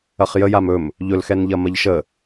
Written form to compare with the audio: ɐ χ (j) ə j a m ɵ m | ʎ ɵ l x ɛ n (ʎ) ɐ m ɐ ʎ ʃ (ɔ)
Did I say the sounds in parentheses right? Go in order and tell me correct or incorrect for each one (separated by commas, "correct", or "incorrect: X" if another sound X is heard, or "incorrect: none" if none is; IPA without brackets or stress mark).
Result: correct, correct, incorrect: ə